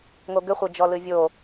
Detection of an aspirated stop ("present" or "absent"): absent